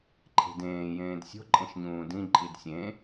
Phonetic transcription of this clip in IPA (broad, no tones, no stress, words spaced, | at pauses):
ǃʰe̤dẽː jẽːdsʲo̤ ǃʼẽʃɲũːdĩ ǃʼidsʲẽ